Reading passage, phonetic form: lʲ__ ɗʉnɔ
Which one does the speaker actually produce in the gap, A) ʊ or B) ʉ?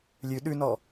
B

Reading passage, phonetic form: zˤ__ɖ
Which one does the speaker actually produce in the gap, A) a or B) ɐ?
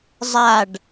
A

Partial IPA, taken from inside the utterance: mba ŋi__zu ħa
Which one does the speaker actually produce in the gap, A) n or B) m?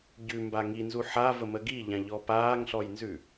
A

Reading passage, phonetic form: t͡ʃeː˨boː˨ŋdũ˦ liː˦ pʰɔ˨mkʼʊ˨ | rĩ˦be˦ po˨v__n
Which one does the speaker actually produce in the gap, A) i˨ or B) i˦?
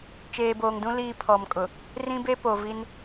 B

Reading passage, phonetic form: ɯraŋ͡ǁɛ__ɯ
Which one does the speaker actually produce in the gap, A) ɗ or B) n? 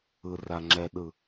A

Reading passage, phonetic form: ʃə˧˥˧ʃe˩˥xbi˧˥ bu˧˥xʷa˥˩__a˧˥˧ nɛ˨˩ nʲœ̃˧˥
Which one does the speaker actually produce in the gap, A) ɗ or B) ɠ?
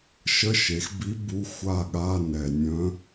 B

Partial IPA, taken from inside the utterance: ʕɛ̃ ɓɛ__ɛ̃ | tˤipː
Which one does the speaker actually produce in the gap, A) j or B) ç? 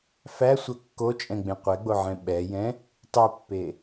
A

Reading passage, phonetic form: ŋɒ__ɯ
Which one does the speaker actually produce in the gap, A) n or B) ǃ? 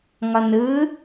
A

